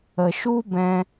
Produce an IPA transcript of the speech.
ə˨ ʃ u˦ b ɛ̃˧

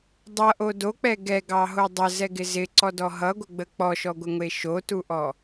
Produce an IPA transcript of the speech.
dˤ ʌ ʔ o d o k͡p ɛ ɡ ɛ ɡ ɑ ɦ o dˤ ə z ɛ ɡ ɪ z ɪ ǀ ɔ d ɔ ɦ ʌ ɡʷ ə ɡ͡b ə k͡p ɔ ʃ ɔ ɡʷ ɪ ŋʷ e ʃ o t u ʔ ɔ

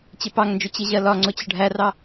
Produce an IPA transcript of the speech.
t͡ɕ ɪ p ɑ ŋ n d͡ʒ ʊ t͡ɕ ɪ ʑ ɜ l ɒ ŋ͡ǀ ʊ t͡ɕ ʌ ɖʱ æ r ɑ

